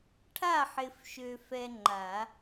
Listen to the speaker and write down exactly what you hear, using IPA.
ʈʰa˥˧ħɪ˧fʃø˧fɛ˧ ŋ͡ǃa˨˩˦

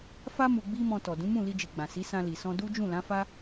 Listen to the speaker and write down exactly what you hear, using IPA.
fa˦ mu˧ɡ͡bi˦mɔ̃˧tɔ˨ dũ˨˦mũ˦˨li˧d͡ʒi˨ ɡ͡bã˨si˨˦ sã˧li˨ sɔ̃˧du˦ d͡ʒũ˦˨lã˨˦fa˦

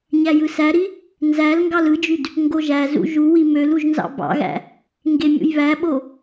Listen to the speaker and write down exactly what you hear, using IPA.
ɲæjɯsæɾi | nzæl ŋɡɑlɯd͡ʒyd | ŋɡoʒæzṵ ʒuwi møluʒ nzɑ̰bɑ̰ɣæ̰ | ŋɡemʲṵjβæɓo

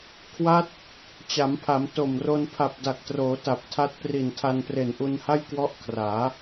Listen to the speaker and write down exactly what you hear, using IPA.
kʰwa˦˥t̚ | t͡ɕa˩˦mpʰa˩˦m to˨˩mro˧n pʰa˨˩p̚da˨˩k̚troː˩˦ ta˨˩p̚tʰa˦˥t̚ pri˨˩ntʰa˧npre˨˩n ʔu˧nha˥˩jkwɔ˦˥ʔ kʰraː˩˦

